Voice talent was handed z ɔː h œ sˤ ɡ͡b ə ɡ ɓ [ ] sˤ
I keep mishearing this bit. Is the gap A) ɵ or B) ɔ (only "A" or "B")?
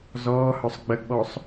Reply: B